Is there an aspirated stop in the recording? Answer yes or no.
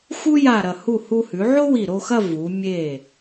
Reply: no